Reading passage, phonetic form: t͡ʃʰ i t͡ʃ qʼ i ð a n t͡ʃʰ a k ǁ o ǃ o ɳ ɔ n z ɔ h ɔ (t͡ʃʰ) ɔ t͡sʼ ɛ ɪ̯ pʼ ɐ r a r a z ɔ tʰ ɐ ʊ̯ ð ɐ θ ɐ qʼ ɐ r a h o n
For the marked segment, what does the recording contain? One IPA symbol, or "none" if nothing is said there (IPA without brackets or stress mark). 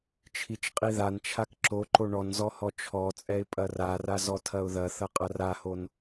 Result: t͡ʃʰ